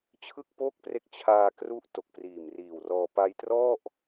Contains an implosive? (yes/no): no